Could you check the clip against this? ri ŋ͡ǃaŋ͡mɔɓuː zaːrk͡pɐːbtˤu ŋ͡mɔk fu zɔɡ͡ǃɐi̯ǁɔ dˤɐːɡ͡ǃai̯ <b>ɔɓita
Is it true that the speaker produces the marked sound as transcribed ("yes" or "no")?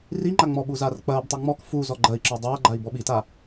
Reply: yes